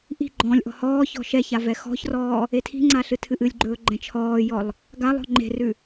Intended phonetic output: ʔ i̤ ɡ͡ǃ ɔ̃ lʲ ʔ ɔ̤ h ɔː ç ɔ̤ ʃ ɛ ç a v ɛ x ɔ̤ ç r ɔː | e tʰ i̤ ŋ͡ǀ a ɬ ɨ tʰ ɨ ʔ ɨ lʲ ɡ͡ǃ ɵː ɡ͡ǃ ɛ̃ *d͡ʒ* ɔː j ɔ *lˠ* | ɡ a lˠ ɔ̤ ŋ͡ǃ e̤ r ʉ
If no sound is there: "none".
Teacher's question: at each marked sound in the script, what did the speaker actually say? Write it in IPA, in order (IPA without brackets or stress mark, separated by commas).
t͡ʃʰ, lˠ